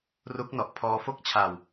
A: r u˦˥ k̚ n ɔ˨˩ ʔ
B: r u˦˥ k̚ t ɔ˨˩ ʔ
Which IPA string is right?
A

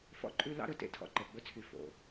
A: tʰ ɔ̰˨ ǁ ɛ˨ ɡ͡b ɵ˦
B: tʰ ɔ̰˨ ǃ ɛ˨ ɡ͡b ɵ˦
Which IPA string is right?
B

